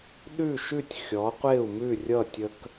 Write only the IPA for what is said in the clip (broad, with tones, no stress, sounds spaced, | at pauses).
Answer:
ɗ ʉ˥˩ ʃ ʉ˥˩ tʲ xʲ ɔ˩˥ qʷ e˥˩ u̯ m ʉ˥˩ rʲ ʌ˥˩ tʲ ə˥ k